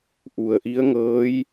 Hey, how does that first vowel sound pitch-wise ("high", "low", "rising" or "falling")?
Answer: low